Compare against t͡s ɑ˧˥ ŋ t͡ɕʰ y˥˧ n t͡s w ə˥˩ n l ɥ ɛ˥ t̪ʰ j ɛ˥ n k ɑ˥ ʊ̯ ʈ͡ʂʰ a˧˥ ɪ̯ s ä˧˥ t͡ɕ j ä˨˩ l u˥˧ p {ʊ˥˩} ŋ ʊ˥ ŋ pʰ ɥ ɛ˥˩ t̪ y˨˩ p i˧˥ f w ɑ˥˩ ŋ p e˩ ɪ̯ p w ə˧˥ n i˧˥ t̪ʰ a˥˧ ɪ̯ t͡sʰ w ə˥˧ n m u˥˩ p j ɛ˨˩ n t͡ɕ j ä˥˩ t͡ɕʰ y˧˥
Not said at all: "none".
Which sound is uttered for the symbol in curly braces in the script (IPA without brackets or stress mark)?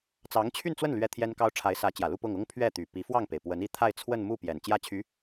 ʊ˥˩